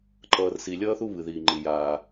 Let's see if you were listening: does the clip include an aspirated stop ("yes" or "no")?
no